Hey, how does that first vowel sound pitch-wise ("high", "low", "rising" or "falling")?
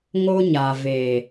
high